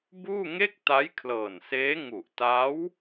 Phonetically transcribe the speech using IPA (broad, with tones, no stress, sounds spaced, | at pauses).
b uː˥˩ ŋ e˥˩ k̚ t a˦˥ j kʰ l ɤː˨˩ n s eː˦˥ ŋ u˨˩ ʔ t a˦˥ w